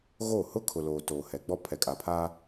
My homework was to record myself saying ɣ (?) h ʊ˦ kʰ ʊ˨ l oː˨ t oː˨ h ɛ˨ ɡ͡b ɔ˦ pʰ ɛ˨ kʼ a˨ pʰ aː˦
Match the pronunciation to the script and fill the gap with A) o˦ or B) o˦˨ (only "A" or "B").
B